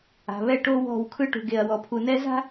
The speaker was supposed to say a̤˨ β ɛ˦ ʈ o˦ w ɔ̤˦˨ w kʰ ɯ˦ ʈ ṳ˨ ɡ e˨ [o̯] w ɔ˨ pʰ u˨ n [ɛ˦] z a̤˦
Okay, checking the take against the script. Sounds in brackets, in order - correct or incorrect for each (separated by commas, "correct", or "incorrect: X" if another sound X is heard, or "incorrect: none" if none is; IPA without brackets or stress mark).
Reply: incorrect: ɐ̯, correct